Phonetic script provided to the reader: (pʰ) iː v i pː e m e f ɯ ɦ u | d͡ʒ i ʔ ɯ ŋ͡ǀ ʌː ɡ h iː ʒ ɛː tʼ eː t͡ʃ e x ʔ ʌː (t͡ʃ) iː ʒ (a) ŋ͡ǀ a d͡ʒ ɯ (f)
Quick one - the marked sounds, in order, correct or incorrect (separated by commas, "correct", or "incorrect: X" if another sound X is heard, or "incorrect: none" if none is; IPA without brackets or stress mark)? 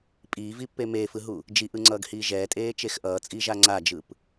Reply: incorrect: pʼ, incorrect: t͡sʼ, correct, incorrect: p